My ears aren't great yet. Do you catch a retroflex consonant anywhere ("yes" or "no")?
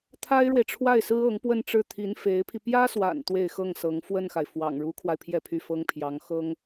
yes